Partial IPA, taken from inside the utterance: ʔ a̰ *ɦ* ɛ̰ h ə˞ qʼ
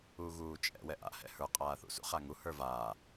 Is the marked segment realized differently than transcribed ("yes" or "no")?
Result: yes